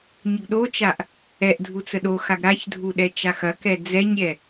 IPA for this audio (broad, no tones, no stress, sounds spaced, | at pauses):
ɲ ə ɡ ɗ o t͡ʃ a ʔ | ɛ ʔ dʱ u t͡s ə ɗ o x a ɡ ɾ a ç dʱ u ɗ ɛ t͡ʃ a x ɐ k ɛ d͡z ɛ ɲ ɾʲ ɛ